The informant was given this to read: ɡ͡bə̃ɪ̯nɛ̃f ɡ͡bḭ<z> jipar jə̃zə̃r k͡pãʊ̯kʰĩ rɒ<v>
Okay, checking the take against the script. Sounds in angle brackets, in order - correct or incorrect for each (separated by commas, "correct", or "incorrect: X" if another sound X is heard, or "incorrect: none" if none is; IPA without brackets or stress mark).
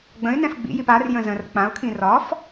incorrect: none, incorrect: f